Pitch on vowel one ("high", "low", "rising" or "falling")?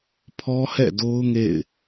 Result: high